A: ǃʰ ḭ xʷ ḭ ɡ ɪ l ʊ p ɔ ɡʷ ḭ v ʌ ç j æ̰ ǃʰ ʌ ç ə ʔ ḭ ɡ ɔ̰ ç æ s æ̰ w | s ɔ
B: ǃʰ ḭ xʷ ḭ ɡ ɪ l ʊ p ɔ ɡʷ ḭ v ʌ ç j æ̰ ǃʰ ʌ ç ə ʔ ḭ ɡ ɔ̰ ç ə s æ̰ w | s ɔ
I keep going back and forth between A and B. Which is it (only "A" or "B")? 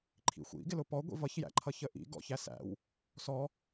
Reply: A